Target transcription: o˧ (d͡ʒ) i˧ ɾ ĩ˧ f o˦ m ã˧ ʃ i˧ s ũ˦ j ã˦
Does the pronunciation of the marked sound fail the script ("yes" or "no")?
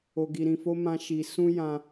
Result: yes